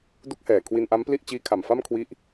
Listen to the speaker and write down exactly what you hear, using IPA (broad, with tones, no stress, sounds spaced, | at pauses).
d u˦˥ k̚ h ɛː˨˩ kʰ w i˧ n ʔ a˦˥ m p l i˥˩ ʔ t͡ɕ iː˦˥ kʰ a˨˩ m f a˥˩ m kʰ w i˦˥ ʔ